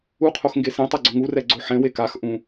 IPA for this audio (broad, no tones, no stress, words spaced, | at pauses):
uqʰox ŋɡesẽtˤɛ ɡ͡ǀʊŋurɛ ɡ͡ǀoħɛ̃we kax ʔũ